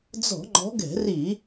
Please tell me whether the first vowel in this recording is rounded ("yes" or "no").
yes